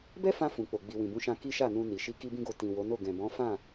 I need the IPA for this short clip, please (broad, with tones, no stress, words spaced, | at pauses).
bɛ˦fã˧ fũ˨k͡po˨ ɡ͡bi˨wĩ˨bũ˨˦ʃã˧ ki˦ʃa˦˨nũ˧ni˨ ʃi˧ki˦bĩ˦ɡo˧ tĩ˨wo˨˦no˦˨ ɡɛ̃˨bɔ̃˨˦ fã˦˨